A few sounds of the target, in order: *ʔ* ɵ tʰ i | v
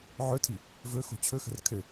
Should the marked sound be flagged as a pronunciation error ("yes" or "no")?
yes